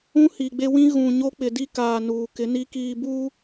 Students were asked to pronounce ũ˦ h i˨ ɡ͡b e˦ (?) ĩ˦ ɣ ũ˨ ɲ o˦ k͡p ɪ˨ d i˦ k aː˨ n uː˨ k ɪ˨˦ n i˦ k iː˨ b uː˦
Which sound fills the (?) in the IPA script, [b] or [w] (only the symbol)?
w